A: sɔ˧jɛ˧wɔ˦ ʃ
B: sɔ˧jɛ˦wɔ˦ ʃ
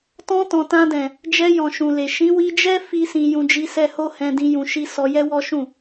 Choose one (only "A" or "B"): B